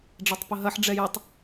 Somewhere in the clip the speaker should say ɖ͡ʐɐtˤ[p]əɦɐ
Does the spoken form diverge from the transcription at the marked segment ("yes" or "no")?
no